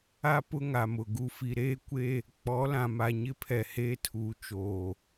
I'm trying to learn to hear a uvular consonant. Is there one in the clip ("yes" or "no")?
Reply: no